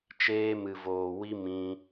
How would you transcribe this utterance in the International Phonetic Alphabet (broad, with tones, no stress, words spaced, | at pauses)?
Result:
t͡ʃeː˧mɨ˨voː˨wi˧ mĩ˧